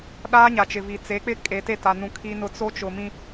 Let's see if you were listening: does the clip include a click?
no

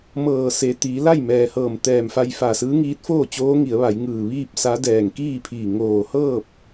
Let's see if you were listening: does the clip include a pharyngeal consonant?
no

